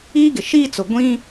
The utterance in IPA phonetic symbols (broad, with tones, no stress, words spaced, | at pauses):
iː˦ɡɪ˨ʃiː˦t͡sʊ˨ ɡʷĩ˦